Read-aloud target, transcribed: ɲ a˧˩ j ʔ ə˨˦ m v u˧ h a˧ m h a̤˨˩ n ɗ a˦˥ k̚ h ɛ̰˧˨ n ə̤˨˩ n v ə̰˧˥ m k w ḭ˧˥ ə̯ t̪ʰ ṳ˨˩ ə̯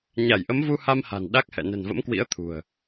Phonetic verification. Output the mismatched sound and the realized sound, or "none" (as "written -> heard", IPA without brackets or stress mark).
none